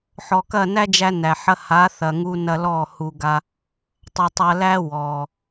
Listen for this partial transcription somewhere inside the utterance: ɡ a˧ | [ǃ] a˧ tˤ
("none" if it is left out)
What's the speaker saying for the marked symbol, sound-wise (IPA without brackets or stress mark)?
tˤ